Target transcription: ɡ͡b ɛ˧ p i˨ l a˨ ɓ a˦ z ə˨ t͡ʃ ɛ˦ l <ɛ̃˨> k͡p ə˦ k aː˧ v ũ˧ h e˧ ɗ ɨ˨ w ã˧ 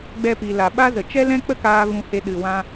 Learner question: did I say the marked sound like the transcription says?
no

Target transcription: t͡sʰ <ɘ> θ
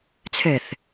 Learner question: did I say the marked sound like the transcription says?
yes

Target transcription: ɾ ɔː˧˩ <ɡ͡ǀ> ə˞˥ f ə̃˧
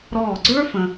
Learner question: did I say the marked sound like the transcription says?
yes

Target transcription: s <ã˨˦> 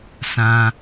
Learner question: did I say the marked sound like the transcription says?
no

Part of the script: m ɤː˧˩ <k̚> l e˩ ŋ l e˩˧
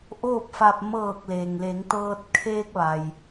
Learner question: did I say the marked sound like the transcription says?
yes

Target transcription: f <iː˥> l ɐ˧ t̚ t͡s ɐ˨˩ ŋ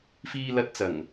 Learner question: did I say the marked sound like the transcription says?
no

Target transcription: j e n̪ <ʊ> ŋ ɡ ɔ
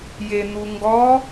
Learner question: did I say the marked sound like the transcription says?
no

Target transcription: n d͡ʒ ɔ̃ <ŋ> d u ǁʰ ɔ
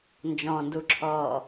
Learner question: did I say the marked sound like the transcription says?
no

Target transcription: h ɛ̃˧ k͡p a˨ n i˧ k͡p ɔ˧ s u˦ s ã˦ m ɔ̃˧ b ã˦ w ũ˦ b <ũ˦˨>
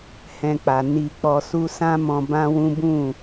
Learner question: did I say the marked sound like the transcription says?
yes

